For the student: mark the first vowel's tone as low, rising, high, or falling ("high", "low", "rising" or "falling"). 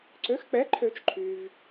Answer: rising